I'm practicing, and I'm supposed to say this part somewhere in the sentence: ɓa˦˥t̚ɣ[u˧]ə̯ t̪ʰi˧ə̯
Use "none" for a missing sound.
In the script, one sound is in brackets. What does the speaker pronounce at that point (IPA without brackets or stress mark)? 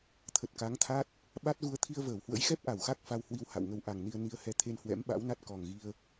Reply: u˧